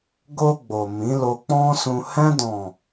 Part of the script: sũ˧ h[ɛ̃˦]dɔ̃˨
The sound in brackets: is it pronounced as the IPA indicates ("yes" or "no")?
no